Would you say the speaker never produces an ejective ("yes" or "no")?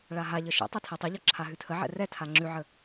yes